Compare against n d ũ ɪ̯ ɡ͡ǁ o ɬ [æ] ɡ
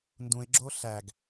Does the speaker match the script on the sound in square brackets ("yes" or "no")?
yes